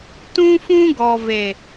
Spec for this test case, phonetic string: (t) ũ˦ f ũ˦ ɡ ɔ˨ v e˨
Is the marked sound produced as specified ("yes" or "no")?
yes